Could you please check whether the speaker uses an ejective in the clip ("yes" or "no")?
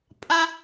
yes